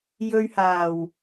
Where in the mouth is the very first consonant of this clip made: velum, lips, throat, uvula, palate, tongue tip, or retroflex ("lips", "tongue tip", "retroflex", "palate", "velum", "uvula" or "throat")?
palate